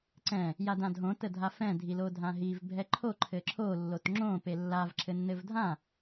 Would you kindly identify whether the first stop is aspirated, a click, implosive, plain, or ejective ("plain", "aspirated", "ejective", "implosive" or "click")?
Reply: click